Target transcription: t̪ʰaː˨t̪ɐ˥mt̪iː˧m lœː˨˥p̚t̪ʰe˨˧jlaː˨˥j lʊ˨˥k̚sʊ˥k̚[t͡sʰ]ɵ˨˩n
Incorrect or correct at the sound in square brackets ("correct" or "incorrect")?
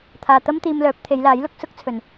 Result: correct